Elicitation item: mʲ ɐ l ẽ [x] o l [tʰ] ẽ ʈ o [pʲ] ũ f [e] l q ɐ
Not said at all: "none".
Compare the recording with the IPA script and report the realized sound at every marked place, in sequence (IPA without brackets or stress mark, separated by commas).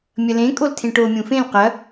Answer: kʼ, tʰ, mʲ, ẽ